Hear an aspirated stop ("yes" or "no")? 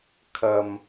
yes